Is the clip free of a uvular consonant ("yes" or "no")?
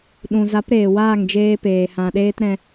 yes